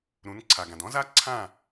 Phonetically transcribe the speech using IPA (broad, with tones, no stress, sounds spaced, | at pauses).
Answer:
ɾ ũ˨˦ n ǀʰ a˨ ɡ ã˨ d ɔ̃˦ z a˦ ǀʰ ã˦˨